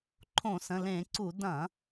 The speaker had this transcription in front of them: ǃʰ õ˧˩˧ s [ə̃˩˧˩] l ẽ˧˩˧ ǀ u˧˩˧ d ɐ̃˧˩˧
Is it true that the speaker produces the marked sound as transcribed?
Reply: yes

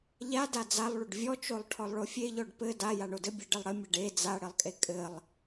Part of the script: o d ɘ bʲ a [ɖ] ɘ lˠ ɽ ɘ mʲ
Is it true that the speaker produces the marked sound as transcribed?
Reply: yes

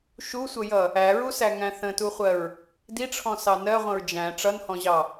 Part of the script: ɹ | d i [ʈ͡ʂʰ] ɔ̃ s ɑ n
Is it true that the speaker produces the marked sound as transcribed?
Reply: yes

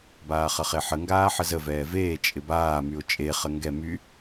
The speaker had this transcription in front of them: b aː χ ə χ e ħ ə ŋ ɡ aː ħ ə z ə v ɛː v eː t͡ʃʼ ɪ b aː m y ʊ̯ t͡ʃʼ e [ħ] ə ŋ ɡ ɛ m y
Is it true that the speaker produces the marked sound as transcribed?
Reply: no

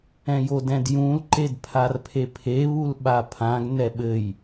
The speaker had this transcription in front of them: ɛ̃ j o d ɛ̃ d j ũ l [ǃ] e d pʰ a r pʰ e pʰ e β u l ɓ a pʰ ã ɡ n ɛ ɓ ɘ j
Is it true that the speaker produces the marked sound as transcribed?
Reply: yes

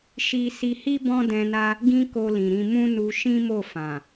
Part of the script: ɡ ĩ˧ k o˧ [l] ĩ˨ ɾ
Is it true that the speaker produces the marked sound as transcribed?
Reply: yes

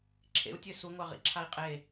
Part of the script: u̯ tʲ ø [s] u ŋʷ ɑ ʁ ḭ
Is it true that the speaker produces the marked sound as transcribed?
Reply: yes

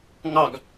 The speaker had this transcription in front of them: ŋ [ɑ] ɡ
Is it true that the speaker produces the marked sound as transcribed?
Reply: yes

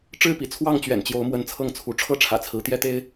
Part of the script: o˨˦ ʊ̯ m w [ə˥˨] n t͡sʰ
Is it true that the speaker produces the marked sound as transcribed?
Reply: no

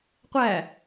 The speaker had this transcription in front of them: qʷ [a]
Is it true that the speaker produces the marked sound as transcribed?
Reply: no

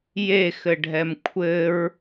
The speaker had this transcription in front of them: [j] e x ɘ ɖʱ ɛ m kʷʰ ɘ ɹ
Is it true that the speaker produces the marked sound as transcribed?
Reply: yes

